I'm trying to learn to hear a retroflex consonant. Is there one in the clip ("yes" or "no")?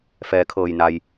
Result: no